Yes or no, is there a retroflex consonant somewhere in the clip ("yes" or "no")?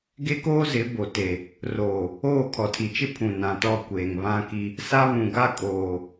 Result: no